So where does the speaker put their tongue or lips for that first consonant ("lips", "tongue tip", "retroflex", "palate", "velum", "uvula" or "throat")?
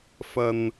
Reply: lips